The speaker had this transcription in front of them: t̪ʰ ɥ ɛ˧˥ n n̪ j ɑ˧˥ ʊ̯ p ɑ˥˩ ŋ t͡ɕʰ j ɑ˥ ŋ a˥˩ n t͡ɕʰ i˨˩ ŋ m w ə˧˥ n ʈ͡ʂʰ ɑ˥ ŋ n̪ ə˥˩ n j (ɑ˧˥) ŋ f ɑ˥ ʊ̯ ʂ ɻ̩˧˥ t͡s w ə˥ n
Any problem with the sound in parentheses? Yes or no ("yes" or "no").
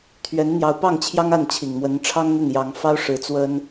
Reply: no